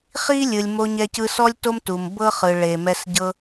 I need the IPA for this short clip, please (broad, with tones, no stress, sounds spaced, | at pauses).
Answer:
χ i˦ lʲ ɯ˨ lʲ m o˧ ɲ ɛ˧ c ɯ˧ s ɔ˦ lʲ t o˦ m t u˨ m b ɤ˦ χ ɯ˨ ɭ e˨ m ɛ˧ s ɟ ɤ˦